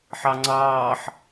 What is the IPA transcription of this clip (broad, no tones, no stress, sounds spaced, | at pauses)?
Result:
ħ ɑ ŋ͡ǀ ɑː ħ